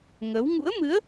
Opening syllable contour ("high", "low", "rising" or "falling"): rising